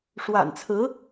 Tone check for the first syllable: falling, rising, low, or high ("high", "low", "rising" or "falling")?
low